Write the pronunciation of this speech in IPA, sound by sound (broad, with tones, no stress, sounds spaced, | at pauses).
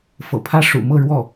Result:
f ɤ̰˨˩ pʰ ä˥ ʂ ṵ˨˩ m ɤ˥˧ ɻ w ɔ˥˩